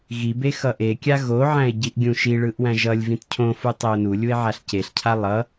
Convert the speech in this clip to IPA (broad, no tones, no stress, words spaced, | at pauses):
ɣibe xʌʔekʲa ɣoʕæ̃e̯ ɟiʔɡʲũʃiɭɯʔ wæ̃ʒʌlʲvĩt cʰõfu tˤeo̯nulʲue̯ ʕaɬceɬcʰa lˠʌ